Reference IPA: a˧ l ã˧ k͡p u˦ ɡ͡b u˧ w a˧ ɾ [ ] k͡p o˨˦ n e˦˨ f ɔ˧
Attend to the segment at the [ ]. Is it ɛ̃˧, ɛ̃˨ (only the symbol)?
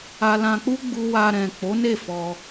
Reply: ɛ̃˨